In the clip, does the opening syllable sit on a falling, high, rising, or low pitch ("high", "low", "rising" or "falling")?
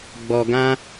low